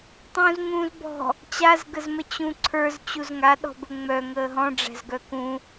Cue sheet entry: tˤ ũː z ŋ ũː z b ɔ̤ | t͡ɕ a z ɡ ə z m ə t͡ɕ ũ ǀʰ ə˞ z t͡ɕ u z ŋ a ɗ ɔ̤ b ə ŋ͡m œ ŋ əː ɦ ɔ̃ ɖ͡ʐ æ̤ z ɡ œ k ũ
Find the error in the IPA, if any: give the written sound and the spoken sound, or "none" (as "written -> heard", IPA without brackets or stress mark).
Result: none